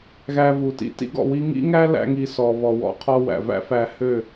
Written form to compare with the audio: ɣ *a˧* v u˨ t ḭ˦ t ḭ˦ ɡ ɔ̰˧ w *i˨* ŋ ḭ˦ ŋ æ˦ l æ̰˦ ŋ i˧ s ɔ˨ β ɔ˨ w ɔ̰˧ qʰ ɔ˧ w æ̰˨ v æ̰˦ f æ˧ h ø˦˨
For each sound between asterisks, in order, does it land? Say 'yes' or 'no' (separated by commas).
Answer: no, no